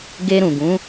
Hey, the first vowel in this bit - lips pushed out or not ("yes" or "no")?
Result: no